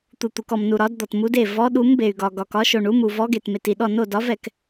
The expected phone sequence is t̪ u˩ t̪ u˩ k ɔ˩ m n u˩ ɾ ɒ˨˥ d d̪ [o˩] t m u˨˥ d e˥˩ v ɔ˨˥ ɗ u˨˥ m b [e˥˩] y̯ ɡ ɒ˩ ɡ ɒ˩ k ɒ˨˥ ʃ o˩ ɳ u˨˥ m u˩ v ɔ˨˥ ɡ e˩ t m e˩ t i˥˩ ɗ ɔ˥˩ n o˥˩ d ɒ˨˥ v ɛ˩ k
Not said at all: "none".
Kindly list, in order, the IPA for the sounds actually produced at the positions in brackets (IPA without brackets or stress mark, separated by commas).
ɔ˩, e˩